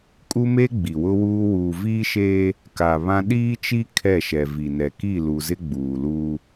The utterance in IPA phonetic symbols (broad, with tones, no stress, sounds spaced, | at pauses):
kʼ u˦ m e˦ ɡ͡b i˨ w ʊ˦ w uː˦ w uː˨ v iː˦ ʃ eː˦ | k a˨ β ã˦ ɗ iː˦ t͡ʃ i˦ kʰ ɛ˦˨ ʃ ɛ˨ v i˨ n ɛ˨ k i˦˨ l u˨ z ɪ˦ ɡ͡b uː˨ l uː˦